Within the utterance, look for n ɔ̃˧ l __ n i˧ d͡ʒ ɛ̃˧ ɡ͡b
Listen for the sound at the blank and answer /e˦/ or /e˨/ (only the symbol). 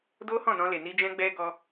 e˨